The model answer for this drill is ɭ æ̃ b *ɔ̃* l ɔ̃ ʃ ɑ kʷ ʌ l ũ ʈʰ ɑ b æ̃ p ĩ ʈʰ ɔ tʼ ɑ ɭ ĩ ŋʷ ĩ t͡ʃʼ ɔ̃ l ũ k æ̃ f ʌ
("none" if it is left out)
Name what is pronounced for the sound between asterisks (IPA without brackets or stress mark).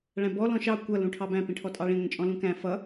ɔ